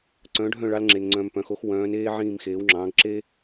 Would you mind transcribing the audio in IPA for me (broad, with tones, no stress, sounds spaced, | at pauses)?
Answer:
ǀ œ̃ː˨˦ ɖʱ œ̃˦˨ ɭ ɑ˧ l ŋ͡ǁ e˨ n ŋ͡ǀ œ̃˧ m p œ̃˨˦ x o˦ x w œ̃ː˨˦ n eː˦ ʕ ĩː˦˨ m x eː˨˦ w ŋ͡ǁ ɑ̃ː˨˦ ɡ ǁ e˦